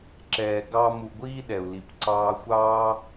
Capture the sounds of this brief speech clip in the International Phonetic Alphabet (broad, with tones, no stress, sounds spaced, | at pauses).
ǁ ɛː˨ ɡ ɑ˦ m u˧ ɡʷ iː˦ ɗ ɛ˨ u̯ l i˨ p ǀ ɑː˧ xʷ ɑː˦